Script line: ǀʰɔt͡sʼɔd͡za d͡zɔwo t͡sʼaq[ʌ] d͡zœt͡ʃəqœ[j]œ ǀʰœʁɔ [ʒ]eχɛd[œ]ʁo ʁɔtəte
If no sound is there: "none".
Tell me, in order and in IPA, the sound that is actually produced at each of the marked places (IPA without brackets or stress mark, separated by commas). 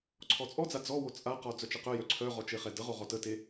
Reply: ɔ, j, t͡ʃ, ə